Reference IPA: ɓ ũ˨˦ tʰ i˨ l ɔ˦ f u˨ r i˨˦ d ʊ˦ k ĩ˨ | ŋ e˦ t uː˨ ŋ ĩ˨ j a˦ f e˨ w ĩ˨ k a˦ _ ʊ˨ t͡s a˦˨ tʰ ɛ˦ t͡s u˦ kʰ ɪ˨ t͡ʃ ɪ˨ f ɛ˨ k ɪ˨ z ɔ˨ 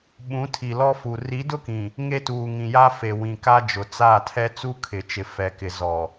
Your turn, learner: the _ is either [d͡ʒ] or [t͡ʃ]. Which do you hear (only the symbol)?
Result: d͡ʒ